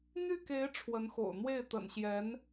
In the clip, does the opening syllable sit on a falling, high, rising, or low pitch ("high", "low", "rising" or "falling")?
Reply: falling